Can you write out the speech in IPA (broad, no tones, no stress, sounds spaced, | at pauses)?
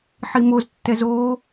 ħ i m o z tː ɛ z o